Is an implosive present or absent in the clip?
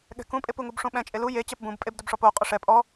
present